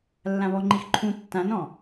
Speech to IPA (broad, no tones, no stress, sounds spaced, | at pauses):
lː ã β ɔ ŋ͡ǃ i x ǃʰ ũ tː ã n ɔ̃